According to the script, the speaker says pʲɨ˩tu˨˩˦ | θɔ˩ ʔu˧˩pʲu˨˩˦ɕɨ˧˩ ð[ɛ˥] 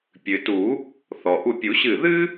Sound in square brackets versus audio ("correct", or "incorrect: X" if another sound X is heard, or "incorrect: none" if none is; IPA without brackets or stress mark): incorrect: ɨ˥